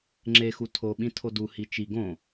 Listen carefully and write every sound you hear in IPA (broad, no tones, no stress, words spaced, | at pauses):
ŋ͡ǁexu tʰo ɓĩtʰodu hit͡ʃi ɡõ